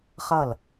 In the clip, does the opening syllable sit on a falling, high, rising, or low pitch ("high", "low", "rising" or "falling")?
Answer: falling